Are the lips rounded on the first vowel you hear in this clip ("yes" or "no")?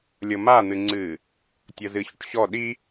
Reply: no